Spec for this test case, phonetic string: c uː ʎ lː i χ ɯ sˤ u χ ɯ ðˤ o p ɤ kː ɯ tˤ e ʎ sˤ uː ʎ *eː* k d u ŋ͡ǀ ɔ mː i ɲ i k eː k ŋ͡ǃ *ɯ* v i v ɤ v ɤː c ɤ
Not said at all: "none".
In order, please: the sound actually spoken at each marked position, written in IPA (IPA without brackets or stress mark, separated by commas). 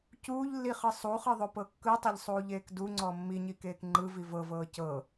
eː, ɯ